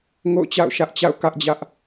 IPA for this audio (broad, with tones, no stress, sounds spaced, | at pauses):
ŋ o̰˦˨ ʊ̯ t͡ɕ a̰˦˨ ʊ̯ ʃ ä˦ ʔ t͡ɕ a̰˦˨ ʊ̯ k ä˦ ʔ d͡ʑ ä˦ ʔ